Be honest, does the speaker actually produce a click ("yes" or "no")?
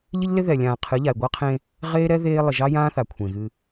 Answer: no